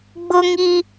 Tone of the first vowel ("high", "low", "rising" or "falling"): high